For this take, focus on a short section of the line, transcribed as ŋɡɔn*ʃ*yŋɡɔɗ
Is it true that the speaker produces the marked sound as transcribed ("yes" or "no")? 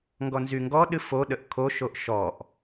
no